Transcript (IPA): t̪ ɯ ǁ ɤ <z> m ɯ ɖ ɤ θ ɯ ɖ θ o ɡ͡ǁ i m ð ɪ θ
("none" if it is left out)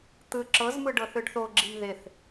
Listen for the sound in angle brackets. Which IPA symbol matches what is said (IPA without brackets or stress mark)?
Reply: z